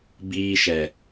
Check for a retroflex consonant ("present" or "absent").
absent